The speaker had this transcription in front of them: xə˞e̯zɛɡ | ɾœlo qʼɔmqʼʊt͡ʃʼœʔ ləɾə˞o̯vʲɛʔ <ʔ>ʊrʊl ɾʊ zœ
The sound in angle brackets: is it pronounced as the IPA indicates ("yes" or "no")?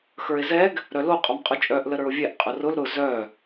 no